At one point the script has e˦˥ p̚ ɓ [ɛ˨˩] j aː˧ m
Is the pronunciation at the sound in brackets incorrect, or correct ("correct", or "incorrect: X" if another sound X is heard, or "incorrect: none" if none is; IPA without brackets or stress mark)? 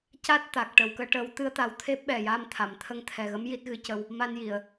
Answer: correct